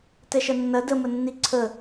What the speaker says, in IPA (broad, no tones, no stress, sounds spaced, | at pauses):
t ɛ ʃ ɐ nː ɐ d ə m ə nː i ǀʰ ə